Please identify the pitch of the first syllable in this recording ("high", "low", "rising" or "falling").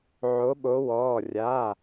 rising